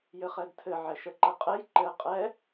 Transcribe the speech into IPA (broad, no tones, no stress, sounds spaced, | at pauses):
j ɘ χ ɛ d tʰ ɘ ʕ ɛ ʃ ə ǃ ə qʼ ɘ j ǃ ɘ qʼ ɛ